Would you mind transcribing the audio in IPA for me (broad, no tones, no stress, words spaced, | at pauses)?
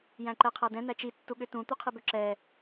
jæ̃ǃɛqʰædɛ̃ n̪æt͡ʃi tːuɠʏtũ t̪uqʰibʏ ǁɛ